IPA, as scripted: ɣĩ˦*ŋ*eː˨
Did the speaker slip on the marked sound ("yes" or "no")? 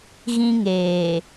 no